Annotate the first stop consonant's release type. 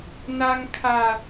aspirated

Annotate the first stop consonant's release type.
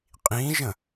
ejective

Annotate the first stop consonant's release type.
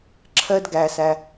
click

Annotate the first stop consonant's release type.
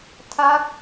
aspirated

